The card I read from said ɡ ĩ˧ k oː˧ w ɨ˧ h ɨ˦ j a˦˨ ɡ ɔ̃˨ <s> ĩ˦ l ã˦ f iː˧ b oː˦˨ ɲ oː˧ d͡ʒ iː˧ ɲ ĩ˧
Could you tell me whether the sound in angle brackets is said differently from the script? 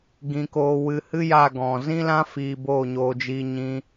yes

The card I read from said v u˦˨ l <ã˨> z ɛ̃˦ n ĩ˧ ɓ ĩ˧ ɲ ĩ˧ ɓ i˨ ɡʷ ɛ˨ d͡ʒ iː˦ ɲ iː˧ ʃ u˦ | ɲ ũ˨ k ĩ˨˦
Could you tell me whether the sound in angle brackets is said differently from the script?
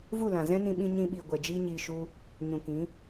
no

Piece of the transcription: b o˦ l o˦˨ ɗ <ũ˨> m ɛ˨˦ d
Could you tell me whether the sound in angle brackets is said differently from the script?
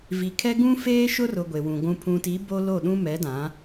yes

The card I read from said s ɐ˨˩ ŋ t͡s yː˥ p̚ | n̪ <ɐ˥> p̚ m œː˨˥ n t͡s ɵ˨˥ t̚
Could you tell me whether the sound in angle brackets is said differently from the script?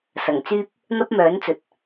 no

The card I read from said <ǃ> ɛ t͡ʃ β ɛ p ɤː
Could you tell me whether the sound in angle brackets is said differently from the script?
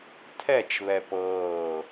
yes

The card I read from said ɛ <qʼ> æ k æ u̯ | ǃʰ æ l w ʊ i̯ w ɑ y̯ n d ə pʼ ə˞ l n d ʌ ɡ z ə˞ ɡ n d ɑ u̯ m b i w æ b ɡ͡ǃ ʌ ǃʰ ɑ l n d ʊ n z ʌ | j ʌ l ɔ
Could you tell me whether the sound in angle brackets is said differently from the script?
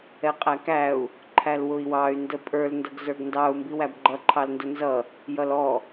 no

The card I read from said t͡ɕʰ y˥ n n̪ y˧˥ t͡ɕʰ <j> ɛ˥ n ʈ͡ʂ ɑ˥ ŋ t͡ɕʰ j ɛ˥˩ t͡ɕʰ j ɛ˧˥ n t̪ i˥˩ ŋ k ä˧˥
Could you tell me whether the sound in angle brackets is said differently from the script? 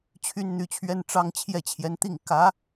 yes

